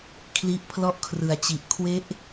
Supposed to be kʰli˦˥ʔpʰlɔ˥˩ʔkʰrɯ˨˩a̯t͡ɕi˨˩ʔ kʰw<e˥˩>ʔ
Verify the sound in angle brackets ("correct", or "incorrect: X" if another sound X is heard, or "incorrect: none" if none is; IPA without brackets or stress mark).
incorrect: e˦˥